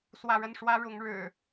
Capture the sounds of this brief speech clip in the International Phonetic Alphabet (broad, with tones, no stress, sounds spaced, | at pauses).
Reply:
s w ä˥˨ ɻ ə˥˨ n ʂ w ä˦ ɻ ʊ˨˦ ŋ ɻ ɻ̩˨˩